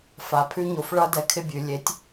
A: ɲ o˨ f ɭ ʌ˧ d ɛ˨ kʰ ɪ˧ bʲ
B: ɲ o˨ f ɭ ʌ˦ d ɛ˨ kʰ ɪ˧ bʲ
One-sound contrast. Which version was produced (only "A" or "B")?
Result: A